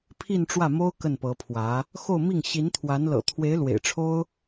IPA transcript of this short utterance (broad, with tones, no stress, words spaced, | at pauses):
pʰi˥˧nʈ͡ʂwä˥˩mo˥ʊ̯ kə˥˩npɤ˧˥pʰwä˧˥ | xo˥˧ʊ̯mi˥˩ŋ ɕi˧˥nt̪ʰwa˧˥nlɤ̰˨˩ t̪ʰwe˧˥ɪ̯lwḛ˨˩ɪ̯ʈ͡ʂʰo˥ʊ̯